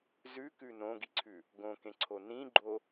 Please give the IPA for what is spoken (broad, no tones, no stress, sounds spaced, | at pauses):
z ʉ k ʉ n õ ɡ i ǀʰ ʉ | ɡ õ k ẽ ǀʰ o n ĩ ɡ͡ǃ o